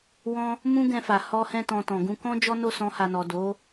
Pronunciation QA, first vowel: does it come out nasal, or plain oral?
nasal